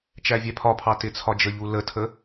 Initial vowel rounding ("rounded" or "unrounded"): unrounded